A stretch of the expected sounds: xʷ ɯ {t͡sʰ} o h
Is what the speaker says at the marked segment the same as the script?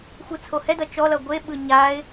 yes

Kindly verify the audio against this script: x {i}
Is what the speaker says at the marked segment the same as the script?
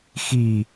yes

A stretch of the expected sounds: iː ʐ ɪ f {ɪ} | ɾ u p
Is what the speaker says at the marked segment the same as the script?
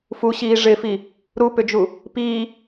no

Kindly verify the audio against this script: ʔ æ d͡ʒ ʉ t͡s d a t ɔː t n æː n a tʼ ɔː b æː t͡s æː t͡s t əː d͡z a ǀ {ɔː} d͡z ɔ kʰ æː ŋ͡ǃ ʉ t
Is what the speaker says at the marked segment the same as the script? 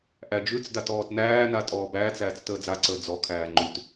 no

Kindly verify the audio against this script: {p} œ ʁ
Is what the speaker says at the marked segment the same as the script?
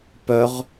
yes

